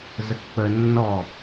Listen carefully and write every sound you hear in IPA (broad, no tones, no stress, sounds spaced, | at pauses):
z ə k k͡p ə nː ɔ